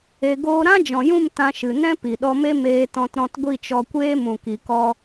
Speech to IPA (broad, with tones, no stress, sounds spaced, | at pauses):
e˧ ɡ oː˦ ɾ ã˦ d͡ʒ ɔ̃˨ j ũ˦˨ m t ã˧ ʃ ɨ˨ n ɛ̃˦ p i˨ ɗ ɔ˧ m e˦ m eː˧ t ɔ̃˧ t ɾ ɔ̃˧ t ɡʷ i˦˨ t͡ʃ ɔ˧ kʷ eː˦ m ũ˨ k i˨ k ɔ˧